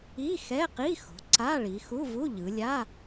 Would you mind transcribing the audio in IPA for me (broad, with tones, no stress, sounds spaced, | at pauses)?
i˧˥˧ x ɛ˧˥˧ q i˧˥˧ x o̤˩˧ ǀ a˧˥˧ ɭ i˩˧ x u˧˥˧ v u˧˥˧ ʎ ɯ˩˧ lʲ a˧˥˧